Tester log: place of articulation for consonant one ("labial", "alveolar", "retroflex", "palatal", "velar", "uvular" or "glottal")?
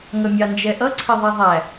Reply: velar